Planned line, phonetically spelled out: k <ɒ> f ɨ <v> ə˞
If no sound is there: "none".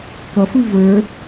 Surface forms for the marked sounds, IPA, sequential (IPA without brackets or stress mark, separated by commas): ʌ, v